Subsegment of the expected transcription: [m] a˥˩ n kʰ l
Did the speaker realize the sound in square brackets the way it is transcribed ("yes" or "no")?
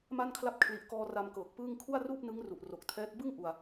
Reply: yes